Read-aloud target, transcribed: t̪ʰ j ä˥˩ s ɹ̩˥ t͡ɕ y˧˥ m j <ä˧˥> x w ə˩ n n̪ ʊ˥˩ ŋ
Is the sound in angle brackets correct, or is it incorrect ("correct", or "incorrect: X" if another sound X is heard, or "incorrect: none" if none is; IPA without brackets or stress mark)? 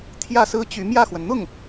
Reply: incorrect: ä˥˩